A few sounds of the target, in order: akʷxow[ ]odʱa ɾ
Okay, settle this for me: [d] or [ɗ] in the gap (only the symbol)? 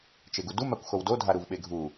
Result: d